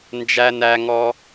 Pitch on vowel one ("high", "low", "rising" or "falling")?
high